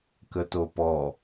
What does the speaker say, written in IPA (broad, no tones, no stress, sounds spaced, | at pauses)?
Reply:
k ə t o p ɔ